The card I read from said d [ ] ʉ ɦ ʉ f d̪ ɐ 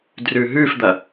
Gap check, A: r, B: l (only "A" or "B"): A